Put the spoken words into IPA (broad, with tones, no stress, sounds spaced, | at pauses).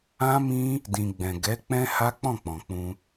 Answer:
ã˦ m ĩ˦ | d ĩ˨ ɡ͡b ɛ̃˨ ɡ ɛ˨˦ k͡p ɛ̃˦ h a˦ k͡p ɔ̃˦˨ k͡p ɔ̃˨ k͡p ũ˧